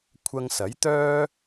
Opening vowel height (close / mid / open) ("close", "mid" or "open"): open